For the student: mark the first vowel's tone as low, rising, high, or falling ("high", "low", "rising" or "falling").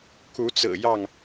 rising